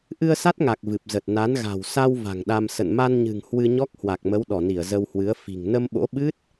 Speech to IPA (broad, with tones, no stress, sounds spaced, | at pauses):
ʔ ɨ˧ ə̯ s a˦˥ t̚ ŋ a˨˩ k̚ v ɨ˨˩ p̚ z ə˨˩ t̚ n a˨˦ n ɣ a̤˨˩ w s a˧ w v a̤˨˩ ŋ ɗ a˧ m s ə̰˧˨ n m a˧ n ɲ ɨ̤˨˩ ŋ h w ɨ˧ ɲ ɔ˦˥ k̚ h w a˨˩ k̚ m ə˨˦ w ɗ ɔ˧˩ n i˧˩ ə̯ z ə˧ w h w ɨ˨˦ ə̯ f i̤˨˩ ŋ n ə˧ m ɓ o̰˧˥ ɓ ɨ˦˥ t̚